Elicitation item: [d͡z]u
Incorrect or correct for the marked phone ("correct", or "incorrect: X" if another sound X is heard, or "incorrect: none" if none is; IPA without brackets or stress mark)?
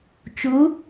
incorrect: t͡ʃ